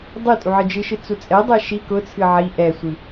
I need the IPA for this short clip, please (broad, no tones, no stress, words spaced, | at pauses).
dˤɨ tʼuʕɨd͡ʒɨʃɨ t͡sut͡sʼɛdˤɛ ʃi kʊt͡sʰɨ ʕi ʔɛsʷɨ